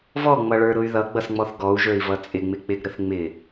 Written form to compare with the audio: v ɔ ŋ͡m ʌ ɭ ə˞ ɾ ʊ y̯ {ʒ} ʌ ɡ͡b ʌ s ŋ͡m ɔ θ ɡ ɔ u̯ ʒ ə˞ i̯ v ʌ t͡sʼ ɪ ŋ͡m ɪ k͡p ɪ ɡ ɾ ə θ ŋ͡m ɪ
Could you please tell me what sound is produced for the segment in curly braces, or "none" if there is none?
ð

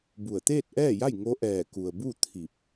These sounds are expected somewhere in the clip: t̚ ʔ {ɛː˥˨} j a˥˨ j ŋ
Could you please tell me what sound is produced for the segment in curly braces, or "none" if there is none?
ɛː˥˨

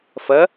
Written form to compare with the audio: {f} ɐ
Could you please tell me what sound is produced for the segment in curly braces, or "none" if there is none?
f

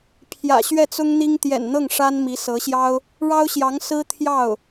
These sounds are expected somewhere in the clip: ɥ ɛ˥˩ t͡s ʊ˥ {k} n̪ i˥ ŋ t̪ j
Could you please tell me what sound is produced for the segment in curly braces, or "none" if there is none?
ŋ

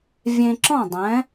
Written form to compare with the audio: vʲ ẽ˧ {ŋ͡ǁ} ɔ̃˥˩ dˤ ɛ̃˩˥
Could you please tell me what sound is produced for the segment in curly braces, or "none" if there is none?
ǁ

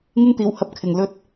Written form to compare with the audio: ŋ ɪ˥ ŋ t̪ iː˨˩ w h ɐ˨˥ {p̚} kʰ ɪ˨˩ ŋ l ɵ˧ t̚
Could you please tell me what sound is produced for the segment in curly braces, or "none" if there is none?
p̚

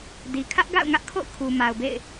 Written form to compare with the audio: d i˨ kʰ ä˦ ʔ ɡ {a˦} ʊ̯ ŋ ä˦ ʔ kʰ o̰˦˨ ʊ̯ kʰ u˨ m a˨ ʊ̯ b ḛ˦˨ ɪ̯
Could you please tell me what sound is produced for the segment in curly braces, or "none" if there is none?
a̰˦˨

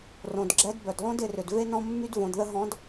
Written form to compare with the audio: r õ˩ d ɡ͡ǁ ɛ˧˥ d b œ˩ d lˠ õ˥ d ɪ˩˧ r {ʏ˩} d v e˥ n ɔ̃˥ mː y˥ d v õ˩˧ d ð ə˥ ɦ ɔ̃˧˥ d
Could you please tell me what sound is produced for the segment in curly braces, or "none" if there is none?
ʏ˩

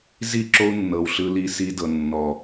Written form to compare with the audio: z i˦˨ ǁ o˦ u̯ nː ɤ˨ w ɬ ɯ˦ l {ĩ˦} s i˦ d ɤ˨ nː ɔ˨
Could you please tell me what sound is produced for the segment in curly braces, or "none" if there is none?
i˦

